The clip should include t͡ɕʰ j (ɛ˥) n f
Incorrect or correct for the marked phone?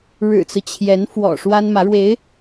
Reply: incorrect: ɛ˧˥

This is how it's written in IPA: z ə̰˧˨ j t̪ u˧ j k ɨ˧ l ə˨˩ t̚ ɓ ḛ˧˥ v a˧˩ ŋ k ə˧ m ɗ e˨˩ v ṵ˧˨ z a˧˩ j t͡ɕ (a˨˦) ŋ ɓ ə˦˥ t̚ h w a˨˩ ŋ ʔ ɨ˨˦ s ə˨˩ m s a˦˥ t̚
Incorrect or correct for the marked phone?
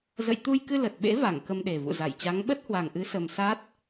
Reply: correct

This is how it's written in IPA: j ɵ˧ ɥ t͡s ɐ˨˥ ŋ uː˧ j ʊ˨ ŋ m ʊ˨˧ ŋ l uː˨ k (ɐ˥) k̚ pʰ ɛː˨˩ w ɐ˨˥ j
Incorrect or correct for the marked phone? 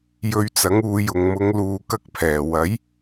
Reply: correct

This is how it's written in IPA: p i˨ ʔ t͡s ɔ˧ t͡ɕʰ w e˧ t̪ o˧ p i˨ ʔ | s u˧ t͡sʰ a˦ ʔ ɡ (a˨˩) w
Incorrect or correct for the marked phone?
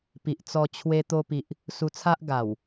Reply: correct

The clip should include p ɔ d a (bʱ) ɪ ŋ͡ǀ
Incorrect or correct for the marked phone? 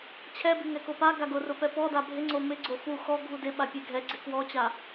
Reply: correct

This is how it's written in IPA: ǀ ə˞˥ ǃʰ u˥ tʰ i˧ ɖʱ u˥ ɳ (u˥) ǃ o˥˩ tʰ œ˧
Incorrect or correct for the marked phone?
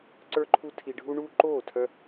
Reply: correct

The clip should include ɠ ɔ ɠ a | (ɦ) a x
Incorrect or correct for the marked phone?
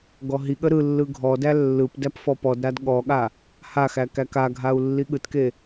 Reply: incorrect: h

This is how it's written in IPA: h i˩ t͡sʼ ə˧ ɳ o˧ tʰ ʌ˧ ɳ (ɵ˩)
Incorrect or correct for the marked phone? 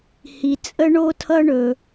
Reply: correct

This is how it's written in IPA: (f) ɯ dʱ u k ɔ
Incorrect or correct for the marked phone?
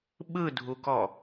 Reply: incorrect: ɓ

